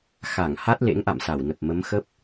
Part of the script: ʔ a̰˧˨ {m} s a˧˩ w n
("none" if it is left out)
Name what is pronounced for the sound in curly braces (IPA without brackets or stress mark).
m